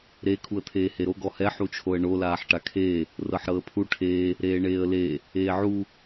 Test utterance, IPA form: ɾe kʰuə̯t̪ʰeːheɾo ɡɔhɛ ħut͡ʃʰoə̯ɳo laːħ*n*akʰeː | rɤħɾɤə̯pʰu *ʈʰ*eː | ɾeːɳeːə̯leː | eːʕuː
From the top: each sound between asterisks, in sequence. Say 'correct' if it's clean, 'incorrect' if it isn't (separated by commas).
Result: incorrect, correct